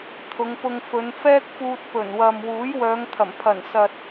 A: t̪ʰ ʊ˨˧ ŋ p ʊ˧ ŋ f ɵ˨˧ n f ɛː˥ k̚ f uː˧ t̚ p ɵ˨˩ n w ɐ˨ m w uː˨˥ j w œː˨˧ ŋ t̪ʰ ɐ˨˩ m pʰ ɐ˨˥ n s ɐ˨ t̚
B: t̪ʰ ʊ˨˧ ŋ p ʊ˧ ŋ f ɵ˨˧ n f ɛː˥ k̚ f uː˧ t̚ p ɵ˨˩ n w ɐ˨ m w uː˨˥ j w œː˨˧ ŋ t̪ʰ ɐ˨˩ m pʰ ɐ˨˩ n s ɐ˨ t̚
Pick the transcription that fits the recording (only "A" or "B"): B